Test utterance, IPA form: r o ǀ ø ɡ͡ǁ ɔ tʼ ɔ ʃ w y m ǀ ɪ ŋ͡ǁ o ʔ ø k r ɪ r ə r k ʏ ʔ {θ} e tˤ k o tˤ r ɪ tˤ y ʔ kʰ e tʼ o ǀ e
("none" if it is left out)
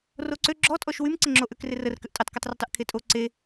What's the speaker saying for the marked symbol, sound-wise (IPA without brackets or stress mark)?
tʼ